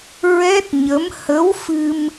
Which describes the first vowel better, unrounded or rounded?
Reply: unrounded